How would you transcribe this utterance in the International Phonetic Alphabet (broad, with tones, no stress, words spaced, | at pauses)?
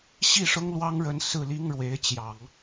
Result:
ɕi˥˩ʂʊ˥ŋlwɑ˥ŋ ɻə˧˥n sɹ̩˥˩li˥ŋɻwe˧˥ɪ̯t͡ɕjɑ˨˩˦ŋ